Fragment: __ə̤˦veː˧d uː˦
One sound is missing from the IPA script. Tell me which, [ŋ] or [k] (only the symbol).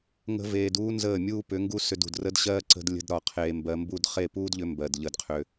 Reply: ŋ